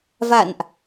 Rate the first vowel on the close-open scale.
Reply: open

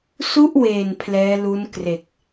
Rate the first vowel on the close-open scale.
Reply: close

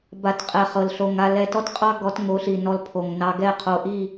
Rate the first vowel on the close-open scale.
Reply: open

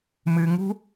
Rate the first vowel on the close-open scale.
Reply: close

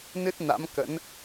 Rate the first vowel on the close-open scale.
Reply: close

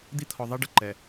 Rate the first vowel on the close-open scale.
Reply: close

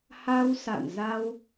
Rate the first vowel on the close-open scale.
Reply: open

